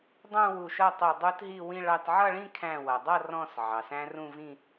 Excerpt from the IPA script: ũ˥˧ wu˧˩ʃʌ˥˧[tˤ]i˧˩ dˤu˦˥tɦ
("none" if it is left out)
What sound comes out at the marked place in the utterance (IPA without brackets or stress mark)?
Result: tˤ